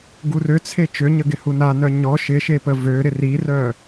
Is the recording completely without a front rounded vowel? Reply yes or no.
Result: no